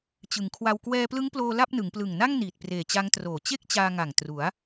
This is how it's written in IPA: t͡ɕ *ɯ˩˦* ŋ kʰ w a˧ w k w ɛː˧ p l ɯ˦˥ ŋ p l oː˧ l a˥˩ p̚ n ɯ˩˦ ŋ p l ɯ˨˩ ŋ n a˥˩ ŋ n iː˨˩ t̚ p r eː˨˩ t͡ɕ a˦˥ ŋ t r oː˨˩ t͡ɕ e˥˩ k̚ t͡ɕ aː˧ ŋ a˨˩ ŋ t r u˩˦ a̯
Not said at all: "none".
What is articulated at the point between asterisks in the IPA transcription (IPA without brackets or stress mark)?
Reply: ɯ˩˦